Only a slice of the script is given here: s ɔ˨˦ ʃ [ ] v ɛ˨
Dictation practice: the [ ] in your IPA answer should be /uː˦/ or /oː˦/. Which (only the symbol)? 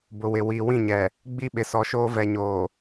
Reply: oː˦